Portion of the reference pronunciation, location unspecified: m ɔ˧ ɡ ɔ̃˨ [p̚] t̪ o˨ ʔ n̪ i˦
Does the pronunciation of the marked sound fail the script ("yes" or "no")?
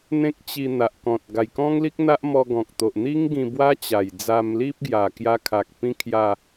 yes